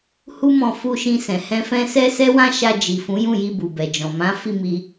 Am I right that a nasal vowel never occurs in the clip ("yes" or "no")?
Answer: no